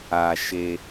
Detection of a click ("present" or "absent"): absent